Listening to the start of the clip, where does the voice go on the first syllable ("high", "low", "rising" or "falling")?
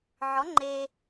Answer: rising